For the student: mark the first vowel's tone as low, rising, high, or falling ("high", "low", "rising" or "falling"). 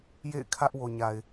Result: falling